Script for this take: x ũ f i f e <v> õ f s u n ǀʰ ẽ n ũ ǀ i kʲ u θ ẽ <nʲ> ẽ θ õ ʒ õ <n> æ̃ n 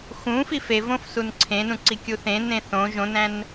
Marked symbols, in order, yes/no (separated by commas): yes, no, yes